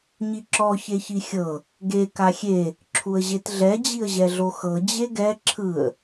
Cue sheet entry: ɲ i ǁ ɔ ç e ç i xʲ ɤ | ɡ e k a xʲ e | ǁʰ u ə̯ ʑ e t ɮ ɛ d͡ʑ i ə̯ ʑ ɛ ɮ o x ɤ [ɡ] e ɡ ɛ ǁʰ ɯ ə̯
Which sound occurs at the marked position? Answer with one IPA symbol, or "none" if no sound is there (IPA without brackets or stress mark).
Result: d͡ʑ